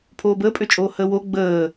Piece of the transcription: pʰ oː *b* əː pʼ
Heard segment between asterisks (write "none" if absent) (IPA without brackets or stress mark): b